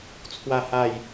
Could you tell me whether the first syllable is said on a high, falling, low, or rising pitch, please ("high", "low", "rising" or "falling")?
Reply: falling